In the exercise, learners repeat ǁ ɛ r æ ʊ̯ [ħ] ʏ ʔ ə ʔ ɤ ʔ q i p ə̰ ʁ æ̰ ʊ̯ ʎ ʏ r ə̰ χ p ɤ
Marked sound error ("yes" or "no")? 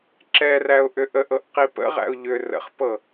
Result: yes